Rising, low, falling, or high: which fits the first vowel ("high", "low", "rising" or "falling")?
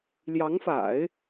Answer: rising